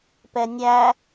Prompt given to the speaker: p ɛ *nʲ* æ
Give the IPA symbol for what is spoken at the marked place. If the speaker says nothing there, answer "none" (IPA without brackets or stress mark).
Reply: nʲ